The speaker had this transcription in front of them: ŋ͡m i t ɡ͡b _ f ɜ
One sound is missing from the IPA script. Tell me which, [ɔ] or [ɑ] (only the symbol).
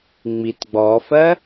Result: ɔ